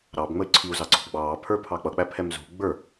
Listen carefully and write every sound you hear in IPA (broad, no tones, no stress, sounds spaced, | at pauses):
ɾ ɑ b ŋ͡m ə y̯ ǀʰ i u̯ z ɑ ɡ͡ǀ ɔ̤ b ɡ͡b ɑː pʰ ə˞ pʰ ɑ k͡p ʌ k͡p æ pʰ ɛ m z ṳ ɡ͡b ə˞